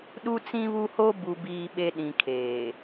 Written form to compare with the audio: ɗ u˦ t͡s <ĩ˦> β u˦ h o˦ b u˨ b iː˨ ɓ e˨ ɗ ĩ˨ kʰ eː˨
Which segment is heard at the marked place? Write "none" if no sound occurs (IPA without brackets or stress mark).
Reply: ĩ˦